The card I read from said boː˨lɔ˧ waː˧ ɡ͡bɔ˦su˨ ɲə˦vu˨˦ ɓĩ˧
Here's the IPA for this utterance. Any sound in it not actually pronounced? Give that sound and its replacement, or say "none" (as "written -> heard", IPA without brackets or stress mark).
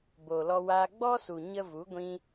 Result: ɓ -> ɡʷ